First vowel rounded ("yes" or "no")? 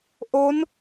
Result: yes